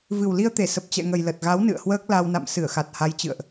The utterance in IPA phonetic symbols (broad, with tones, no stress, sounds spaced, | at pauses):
v ɨ˨˩ w l i˧ ə̯ t̪ e˧˩ s ə˨˩ p̚ t͡ɕ ɛ̰˧˨ ŋ ə˨˩ j l ə˨˩ t̚ ɣ a˨˦ w n ɨ̰˧˨ ə̯ h w əː˦˥ k̚ l a˧ w n a̰˧˨ m s ɨ˧˩ ə̯ x a˨˩ t̚ h a˨˦ j t͡ɕ ɨ̰˧˨ ə̯ ʔ